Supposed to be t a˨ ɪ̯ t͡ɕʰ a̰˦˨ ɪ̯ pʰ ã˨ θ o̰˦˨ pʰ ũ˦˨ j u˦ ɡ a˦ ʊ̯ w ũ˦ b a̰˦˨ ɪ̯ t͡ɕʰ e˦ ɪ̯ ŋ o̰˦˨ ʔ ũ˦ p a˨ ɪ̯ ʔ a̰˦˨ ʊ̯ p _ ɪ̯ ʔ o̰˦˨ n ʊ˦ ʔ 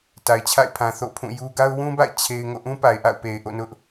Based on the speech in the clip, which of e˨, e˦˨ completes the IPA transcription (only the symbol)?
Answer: e˨